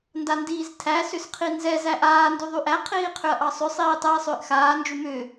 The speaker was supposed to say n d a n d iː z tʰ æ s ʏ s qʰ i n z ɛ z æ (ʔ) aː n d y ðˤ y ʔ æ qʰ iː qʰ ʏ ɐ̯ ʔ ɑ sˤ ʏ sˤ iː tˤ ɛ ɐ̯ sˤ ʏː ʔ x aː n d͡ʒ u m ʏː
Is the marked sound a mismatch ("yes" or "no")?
no